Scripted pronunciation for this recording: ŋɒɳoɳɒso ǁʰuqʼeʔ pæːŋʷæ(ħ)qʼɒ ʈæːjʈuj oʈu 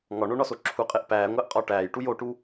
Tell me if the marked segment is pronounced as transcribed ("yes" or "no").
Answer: no